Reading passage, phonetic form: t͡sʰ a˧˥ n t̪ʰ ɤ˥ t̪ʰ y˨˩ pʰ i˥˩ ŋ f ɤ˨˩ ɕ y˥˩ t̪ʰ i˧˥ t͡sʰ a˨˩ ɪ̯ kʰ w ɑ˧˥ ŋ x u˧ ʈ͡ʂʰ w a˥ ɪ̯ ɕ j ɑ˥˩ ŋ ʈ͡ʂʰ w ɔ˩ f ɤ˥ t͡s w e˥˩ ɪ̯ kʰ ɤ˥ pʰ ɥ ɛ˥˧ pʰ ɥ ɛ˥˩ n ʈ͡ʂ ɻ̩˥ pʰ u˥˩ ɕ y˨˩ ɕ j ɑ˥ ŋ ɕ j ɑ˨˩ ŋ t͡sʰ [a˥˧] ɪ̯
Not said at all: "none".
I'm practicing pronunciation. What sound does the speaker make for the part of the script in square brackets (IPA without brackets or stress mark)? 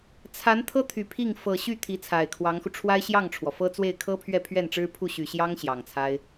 a˥